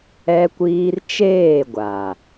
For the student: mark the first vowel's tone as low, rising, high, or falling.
high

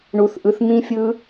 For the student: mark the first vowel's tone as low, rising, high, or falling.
high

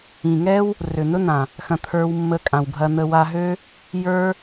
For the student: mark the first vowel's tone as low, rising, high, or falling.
low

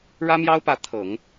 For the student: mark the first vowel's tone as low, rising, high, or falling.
high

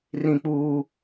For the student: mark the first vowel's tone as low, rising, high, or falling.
high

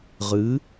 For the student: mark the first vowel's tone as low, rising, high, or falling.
rising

